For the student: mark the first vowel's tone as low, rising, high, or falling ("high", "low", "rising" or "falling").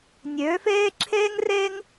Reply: rising